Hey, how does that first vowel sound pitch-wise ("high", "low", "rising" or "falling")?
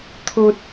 high